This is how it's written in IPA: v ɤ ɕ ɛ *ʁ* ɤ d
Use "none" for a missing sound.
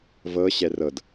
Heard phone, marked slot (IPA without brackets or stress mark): r